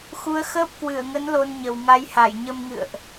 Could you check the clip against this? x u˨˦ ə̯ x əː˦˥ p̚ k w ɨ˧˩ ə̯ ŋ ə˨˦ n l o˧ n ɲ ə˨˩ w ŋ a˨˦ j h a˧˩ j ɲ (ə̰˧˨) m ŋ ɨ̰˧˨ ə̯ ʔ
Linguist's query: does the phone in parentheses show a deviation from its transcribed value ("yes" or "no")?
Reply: yes